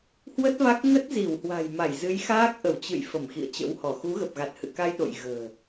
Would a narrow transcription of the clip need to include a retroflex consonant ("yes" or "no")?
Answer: no